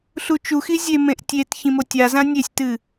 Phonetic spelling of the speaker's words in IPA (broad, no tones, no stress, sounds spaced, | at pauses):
ɬ u t͡ʃ u x i zʲ e m ẽ ʔ tʲ e t ç ĩ m o tʲ a z ã nʲ e sʲ t ɨ